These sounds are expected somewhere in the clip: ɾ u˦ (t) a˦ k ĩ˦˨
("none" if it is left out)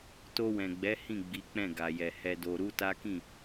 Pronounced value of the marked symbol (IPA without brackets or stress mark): t